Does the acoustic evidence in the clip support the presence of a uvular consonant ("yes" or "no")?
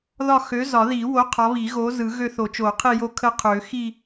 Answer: yes